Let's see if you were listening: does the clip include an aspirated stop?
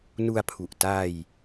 yes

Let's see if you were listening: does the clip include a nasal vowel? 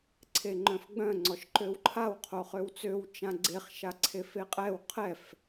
yes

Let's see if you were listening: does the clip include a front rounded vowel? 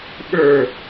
no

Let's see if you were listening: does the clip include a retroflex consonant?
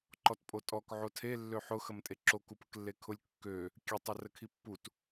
no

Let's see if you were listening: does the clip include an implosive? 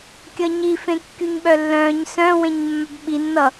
yes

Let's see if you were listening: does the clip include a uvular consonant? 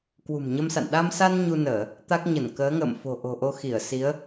no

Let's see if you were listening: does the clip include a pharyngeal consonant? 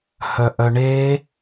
no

